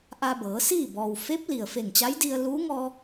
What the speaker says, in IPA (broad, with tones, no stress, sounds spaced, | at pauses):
ʔ a˧ b ɤː˩˧ s iː˥˨ b ɔː˩ w f e˧˥ p̚ l i˩ ə̯ f e˧˩ ŋ t͡ɕ a˧˥ j d i˧ ə̯ l uː˧˥ ŋ ɔː˧